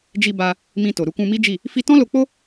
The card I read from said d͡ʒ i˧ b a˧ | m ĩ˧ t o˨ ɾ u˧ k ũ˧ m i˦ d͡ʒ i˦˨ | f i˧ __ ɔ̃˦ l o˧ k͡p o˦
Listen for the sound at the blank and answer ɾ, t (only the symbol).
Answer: t